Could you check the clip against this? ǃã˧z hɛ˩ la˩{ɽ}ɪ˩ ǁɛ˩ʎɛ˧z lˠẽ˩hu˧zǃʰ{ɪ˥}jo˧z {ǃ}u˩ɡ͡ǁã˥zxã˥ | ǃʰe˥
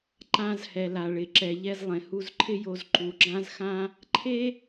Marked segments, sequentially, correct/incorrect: incorrect, correct, correct

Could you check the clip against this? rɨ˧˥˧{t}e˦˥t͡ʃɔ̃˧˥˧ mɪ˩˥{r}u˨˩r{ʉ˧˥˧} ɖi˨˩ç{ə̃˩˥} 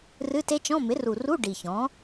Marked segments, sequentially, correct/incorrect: correct, correct, incorrect, incorrect

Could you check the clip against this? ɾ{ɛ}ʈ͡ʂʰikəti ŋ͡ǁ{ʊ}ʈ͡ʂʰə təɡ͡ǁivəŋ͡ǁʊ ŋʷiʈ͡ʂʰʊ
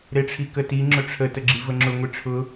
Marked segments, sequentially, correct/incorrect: incorrect, correct

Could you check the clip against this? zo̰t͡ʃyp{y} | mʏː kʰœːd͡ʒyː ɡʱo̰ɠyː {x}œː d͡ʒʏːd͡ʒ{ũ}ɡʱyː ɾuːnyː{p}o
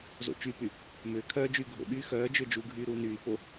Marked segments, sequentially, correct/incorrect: correct, correct, incorrect, correct

